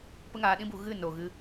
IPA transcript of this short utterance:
pə˦ŋaː˧ɗĩ˦bu˧ ɣɨ˦˨no˨ ɣɨ˧

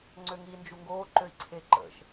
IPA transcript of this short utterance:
ŋ͡ǀøŋi nd͡ʒuŋɡoːǃøi̯ ǀʰeǃə̰ʃ

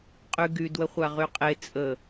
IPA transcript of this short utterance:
qʼyɡy dwəχʷaʁyqʼe t͡sʼə

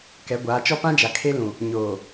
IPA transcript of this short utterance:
kɛ˨˦ɡʷaː˨˦t͡ʃɔ˦ pã˦d͡ʒa˨ kʰe˦lũ˨ | ɲoː˨

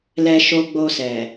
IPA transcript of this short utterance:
lɛ˧ʃo˧ɡ͡bo˧sɛ˨

